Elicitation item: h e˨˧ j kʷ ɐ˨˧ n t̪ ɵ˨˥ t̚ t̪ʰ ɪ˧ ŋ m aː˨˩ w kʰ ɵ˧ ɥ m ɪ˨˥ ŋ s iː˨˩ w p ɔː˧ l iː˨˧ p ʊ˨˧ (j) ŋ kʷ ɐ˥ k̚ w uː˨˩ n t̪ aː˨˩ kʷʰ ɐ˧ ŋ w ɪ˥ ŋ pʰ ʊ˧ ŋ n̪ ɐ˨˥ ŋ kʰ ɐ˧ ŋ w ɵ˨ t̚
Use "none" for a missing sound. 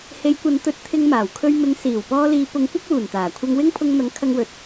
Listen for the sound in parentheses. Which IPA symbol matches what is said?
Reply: none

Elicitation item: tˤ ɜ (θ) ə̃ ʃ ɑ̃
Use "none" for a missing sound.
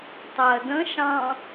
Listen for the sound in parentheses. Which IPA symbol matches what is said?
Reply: d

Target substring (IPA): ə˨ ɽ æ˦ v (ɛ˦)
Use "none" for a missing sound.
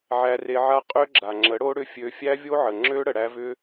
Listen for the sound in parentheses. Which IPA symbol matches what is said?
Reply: ʏ˦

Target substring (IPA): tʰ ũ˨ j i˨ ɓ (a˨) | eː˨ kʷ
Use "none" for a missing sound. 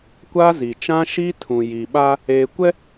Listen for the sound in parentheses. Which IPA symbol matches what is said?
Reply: a˦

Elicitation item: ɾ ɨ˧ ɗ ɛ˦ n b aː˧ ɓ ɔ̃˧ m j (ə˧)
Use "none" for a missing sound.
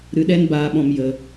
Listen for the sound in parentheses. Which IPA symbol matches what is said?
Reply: ə˧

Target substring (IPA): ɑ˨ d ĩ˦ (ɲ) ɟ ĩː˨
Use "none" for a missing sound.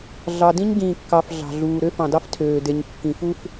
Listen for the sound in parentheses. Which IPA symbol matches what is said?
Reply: ɲ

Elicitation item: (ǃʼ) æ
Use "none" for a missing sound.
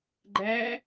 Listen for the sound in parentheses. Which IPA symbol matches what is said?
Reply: ɡ͡ǃ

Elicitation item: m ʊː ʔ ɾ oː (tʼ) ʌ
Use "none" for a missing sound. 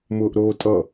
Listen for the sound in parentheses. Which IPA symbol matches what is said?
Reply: tʼ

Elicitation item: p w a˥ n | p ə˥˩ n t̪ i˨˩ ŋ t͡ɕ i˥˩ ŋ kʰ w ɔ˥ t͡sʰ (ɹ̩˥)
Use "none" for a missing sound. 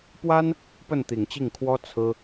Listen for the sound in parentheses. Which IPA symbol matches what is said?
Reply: ɹ̩˥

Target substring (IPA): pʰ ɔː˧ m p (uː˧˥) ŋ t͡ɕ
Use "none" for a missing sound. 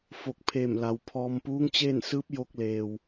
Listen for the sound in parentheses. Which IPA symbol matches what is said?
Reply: uː˧˥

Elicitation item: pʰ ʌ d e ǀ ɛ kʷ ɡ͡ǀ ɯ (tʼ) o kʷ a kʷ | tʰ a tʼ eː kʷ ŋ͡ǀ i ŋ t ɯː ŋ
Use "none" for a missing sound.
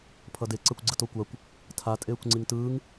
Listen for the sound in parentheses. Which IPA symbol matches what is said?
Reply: t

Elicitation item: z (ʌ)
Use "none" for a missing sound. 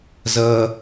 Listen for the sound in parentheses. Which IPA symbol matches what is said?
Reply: ʌ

